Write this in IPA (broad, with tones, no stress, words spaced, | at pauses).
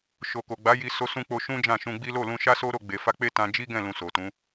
ʃo˨ko˨ɡ͡ba˨˦ji˧ so˧sũ˧k͡po˧ ʃũ˦d͡ʒã˦˨ʃũ˧ɡ͡bi˦ lo˦˨lũ˧ʃa˦ so˦ɾo˦˨ ɡ͡be˨fa˧k͡pe˦ tã˧ d͡ʒi˦ɡɛ̃˦˨ lũ˧so˨tũ˨˦